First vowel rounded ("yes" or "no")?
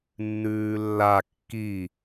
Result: yes